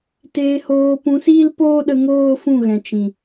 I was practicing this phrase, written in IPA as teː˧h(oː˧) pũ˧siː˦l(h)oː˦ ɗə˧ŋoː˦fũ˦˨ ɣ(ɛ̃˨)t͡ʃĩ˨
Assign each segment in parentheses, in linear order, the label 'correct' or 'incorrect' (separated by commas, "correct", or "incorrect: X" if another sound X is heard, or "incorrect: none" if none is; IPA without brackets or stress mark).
correct, incorrect: p, correct